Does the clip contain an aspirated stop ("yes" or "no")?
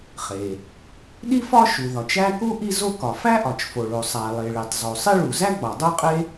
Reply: no